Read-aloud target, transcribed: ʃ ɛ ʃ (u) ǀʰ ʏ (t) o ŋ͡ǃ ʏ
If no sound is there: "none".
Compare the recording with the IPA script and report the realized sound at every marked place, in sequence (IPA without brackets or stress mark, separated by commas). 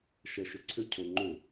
ʏ, cʰ